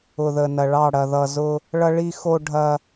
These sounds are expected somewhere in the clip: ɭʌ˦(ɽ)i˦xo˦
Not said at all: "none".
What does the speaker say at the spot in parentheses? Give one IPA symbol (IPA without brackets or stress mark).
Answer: ɭ